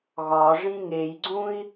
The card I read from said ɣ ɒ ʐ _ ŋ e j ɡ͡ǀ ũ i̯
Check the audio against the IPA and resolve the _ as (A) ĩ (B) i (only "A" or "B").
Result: A